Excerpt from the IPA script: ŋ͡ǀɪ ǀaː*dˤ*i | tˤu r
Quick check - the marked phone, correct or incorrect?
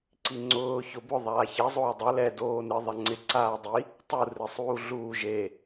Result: correct